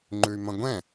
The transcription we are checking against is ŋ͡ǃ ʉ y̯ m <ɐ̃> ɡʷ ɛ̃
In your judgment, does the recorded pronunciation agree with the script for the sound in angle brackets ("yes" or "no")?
yes